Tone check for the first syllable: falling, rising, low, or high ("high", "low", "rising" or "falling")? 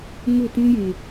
falling